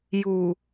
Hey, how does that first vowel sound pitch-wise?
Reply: low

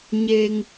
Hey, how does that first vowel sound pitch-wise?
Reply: high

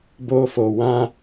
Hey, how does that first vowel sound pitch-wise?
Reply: high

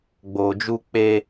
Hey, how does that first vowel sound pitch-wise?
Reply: low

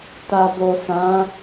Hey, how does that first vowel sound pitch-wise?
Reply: low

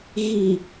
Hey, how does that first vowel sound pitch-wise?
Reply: low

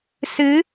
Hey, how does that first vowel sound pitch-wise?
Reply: rising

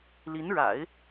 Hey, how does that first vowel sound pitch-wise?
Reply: rising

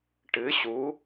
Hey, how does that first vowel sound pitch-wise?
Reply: rising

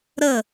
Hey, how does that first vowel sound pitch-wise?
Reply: falling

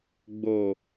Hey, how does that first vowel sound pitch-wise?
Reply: low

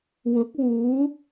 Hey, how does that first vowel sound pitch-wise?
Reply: rising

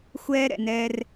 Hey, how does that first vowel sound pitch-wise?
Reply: high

